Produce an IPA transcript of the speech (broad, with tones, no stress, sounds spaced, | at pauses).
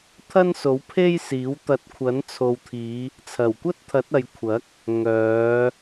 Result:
t̪ʰ ɐ˥ n s o˨˥ w pʰ e˥ j s iː˨˥ w t̪ ɐ˨˥ t̚ kʷʰ ɐ˨˥ n t͡sʰ o˨ w t̪ʰ iː˨˧ | t͡sʰ ɐ˨˩ w kʷ ɐ˥ t̚ t̪ʰ ɐ˨˥ t̚ ɐ˨ j kʷʰ ɐ˨˥ k̚ | ŋ œː˨˧